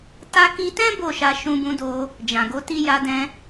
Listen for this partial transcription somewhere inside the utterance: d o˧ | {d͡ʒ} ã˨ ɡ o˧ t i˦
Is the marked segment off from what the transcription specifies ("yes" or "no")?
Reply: no